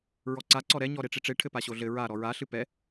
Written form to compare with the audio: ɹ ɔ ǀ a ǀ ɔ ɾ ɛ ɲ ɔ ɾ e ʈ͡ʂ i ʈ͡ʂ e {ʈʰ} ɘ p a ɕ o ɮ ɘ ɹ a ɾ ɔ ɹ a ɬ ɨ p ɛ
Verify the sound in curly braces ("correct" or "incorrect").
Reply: correct